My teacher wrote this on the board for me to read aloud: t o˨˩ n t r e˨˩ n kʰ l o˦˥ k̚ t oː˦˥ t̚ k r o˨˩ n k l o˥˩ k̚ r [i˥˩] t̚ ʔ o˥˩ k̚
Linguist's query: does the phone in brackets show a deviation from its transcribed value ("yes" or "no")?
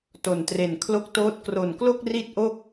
no